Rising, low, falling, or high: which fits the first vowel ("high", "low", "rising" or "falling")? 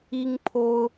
high